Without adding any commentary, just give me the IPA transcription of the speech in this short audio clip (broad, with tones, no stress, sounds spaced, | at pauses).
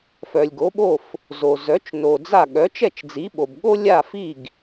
f œ˩ lʲ ɡ o˩˥ ɓ o˥˩ f | z o˩ z œ˩˥ t͡ʃ n o˩ d͡z a˥˩ ɠ œ˩˥ t͡ʃ ɛ˥˩ t͡ʃ d͡z i˩˥ ɓ o˩ b ɠ o˥ lʲ a˥˩ f i˥˩ ɡ